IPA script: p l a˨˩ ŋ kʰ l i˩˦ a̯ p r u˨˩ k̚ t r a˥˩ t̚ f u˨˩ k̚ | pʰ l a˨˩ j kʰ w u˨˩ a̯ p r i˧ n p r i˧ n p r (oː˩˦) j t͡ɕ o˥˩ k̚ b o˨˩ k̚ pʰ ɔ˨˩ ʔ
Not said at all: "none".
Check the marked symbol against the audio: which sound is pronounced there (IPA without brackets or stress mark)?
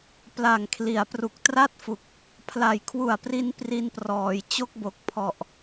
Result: ɔː˩˦